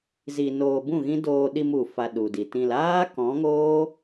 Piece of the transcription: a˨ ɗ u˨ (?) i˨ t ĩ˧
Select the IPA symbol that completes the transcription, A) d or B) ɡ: A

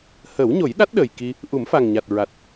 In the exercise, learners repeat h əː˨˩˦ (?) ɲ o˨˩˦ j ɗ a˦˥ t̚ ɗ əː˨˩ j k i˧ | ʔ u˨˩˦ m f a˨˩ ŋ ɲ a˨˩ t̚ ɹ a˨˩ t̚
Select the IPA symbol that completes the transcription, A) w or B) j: A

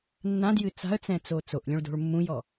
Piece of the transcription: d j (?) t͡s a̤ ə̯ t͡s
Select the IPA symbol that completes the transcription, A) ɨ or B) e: A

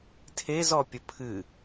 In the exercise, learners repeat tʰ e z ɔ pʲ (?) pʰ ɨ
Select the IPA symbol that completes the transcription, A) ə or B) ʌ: A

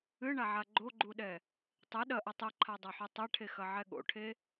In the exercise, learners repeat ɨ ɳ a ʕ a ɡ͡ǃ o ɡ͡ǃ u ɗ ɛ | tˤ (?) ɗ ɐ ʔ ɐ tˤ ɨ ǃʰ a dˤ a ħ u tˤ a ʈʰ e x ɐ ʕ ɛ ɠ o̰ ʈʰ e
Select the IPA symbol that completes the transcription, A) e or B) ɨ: B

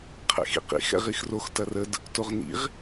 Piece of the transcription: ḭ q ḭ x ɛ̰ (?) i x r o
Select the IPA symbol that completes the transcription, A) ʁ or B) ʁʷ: A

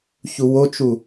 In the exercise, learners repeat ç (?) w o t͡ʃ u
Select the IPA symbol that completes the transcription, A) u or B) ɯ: A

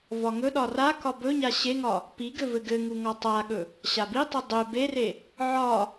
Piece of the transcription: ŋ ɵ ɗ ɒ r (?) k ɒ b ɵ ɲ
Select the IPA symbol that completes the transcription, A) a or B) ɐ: A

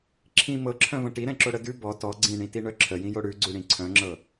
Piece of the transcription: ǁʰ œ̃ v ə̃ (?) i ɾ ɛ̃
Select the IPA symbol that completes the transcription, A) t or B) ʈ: B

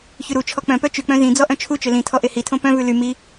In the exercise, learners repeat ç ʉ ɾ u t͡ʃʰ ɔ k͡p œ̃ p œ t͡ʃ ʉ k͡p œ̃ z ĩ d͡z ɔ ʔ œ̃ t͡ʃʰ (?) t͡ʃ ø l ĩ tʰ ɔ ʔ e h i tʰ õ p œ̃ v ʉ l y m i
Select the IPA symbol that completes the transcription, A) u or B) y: A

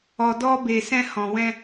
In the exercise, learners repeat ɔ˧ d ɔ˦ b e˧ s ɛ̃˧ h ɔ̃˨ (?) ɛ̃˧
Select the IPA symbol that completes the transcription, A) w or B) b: A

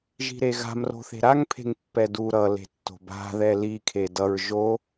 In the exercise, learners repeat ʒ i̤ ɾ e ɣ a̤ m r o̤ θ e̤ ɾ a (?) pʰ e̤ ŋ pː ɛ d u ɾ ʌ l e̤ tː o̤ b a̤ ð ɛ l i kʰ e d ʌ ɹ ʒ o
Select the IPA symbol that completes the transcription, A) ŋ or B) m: A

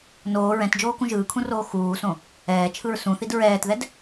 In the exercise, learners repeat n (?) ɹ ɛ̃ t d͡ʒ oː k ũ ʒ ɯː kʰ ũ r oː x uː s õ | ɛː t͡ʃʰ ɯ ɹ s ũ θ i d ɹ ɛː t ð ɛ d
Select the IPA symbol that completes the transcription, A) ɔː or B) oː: B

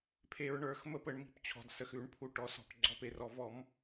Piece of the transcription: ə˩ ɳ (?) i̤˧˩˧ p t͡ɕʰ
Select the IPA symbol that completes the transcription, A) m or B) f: A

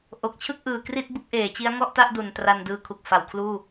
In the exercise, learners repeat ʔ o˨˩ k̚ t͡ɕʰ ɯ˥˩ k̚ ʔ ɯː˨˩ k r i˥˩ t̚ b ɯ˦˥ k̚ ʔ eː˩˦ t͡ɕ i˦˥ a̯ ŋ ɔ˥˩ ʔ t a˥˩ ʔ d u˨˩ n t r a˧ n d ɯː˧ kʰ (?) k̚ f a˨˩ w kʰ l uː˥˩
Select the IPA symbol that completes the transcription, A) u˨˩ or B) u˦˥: A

